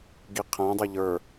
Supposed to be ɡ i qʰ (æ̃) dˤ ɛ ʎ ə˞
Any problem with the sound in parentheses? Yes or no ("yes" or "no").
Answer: no